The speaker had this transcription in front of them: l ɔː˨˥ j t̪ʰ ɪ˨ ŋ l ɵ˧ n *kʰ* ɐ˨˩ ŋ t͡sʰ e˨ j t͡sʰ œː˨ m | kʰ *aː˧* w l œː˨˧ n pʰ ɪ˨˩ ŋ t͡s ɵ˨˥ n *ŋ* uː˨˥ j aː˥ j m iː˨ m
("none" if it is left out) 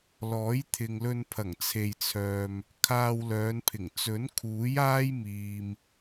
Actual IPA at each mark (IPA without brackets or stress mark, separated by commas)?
pʰ, aː˧, kʰ